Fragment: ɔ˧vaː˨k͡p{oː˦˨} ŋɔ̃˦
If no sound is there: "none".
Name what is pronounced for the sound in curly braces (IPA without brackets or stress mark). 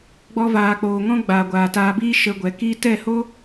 oː˨